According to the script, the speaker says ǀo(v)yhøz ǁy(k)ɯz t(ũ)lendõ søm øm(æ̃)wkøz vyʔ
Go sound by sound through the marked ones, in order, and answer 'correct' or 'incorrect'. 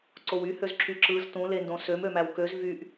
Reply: incorrect: w, incorrect: ǁ, correct, incorrect: æ

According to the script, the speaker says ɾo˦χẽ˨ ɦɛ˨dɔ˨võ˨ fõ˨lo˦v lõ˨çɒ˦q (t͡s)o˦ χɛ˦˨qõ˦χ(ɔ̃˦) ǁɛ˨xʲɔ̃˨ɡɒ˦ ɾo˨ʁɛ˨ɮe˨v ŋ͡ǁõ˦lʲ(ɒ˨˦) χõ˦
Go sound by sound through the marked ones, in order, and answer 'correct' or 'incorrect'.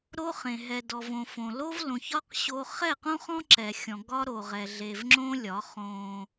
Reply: incorrect: ɕ, correct, correct

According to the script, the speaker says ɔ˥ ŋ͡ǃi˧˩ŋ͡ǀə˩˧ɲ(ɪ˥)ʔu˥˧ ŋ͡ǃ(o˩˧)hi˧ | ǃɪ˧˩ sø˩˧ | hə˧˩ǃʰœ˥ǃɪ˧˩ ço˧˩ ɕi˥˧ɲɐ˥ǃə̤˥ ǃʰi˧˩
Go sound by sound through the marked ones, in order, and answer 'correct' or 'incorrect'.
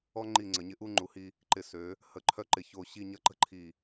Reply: incorrect: ɪ˧, incorrect: u˩˧

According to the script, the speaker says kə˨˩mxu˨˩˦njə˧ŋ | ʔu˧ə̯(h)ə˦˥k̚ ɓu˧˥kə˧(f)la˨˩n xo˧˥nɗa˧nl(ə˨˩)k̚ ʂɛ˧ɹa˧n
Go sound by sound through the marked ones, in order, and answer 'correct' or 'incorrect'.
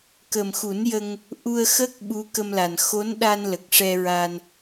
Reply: incorrect: x, incorrect: m, correct

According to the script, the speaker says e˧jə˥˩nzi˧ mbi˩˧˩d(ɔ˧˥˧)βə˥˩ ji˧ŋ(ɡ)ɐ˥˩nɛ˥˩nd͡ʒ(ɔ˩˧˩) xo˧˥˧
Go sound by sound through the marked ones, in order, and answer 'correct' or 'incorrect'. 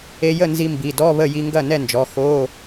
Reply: correct, correct, correct

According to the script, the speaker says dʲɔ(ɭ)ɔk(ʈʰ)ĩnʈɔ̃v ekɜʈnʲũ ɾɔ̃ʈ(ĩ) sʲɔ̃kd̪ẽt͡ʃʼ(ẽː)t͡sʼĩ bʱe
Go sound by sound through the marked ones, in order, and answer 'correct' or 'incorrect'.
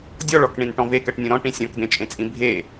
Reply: correct, incorrect: ɳ, correct, incorrect: ẽ

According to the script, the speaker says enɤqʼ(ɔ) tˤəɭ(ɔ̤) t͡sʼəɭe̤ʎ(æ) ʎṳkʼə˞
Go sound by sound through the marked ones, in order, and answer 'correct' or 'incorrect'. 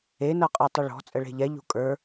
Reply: incorrect: ɤ, correct, incorrect: ɛ

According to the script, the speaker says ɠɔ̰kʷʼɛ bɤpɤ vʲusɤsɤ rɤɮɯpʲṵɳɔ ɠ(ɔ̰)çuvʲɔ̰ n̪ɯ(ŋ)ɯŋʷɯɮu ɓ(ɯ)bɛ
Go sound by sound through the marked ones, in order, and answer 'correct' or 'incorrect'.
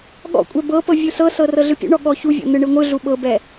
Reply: incorrect: ɔ, incorrect: ɳ, incorrect: ɤ

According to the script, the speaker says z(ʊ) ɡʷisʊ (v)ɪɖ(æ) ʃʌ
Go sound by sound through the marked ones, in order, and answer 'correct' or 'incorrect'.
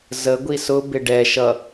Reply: incorrect: ə, incorrect: b, incorrect: ɛ

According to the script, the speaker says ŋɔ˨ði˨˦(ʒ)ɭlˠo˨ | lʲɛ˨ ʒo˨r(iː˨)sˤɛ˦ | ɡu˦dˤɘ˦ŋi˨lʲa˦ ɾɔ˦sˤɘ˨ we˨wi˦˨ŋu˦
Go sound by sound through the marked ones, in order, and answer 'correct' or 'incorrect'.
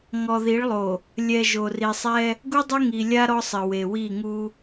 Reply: incorrect: none, incorrect: i˨

